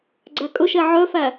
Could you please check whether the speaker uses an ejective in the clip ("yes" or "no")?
yes